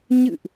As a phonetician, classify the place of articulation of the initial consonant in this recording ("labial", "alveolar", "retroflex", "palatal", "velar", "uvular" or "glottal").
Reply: palatal